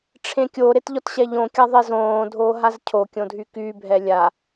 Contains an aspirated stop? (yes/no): yes